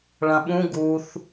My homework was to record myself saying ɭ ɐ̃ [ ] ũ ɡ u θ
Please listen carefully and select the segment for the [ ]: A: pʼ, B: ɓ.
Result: B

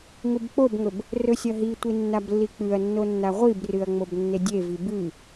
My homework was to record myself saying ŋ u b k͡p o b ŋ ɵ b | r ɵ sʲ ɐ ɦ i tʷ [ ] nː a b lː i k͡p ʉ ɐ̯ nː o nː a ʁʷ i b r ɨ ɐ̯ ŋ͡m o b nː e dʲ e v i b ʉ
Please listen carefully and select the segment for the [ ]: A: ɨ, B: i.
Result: B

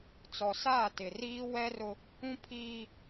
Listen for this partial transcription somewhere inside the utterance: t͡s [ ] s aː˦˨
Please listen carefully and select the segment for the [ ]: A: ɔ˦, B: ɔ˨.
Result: B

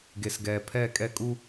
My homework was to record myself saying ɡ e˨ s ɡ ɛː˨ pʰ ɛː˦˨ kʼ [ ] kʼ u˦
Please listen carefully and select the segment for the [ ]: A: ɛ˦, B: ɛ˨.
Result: A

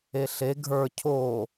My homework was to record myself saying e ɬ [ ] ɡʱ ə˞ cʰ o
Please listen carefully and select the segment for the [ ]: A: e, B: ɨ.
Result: A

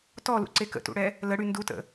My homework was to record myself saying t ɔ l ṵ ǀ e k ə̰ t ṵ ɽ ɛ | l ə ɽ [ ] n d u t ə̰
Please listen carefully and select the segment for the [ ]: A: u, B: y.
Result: B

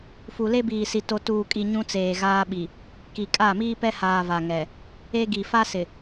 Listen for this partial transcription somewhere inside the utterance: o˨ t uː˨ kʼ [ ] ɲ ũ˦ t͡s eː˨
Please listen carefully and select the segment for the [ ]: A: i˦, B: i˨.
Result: B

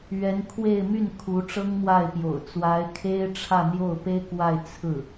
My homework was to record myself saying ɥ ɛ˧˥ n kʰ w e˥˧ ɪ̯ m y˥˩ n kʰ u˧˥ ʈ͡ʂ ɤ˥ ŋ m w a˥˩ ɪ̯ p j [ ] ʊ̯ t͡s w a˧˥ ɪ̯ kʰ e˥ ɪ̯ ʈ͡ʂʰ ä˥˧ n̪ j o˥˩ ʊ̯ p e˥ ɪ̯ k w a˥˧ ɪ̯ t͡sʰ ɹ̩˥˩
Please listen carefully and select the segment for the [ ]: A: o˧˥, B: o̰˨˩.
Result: B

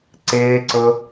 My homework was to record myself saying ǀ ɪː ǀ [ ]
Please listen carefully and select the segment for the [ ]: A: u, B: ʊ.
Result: B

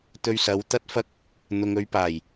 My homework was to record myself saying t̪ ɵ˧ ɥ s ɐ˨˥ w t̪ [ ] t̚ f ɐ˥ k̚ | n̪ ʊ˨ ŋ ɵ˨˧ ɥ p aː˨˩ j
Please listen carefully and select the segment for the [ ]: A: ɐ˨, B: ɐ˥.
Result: B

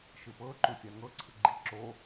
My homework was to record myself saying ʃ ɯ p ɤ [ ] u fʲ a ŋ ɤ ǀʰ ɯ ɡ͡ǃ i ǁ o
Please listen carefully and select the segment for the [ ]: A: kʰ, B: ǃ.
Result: B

